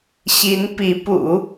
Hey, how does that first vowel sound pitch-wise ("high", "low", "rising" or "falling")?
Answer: rising